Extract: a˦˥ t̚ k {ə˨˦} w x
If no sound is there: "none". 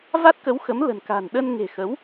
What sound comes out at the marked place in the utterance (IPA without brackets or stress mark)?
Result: ə˨˦